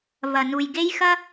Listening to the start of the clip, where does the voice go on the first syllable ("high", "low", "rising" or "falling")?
low